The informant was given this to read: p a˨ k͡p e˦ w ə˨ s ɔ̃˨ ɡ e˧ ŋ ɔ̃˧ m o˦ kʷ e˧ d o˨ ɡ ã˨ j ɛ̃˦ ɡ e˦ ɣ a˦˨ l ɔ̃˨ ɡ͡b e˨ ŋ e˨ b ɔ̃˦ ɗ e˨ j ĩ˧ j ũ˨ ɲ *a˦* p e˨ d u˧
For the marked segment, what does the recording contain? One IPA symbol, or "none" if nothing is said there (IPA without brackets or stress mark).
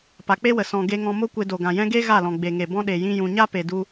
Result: a˦